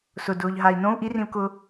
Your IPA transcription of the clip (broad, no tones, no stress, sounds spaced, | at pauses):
s ʊ d ʊː ʎ ɦ a i̯ n õ u̯ ʔ i r ĩ u̯ k ʊ